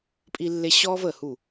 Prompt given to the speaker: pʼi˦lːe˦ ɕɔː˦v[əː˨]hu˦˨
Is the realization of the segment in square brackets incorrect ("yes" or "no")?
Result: no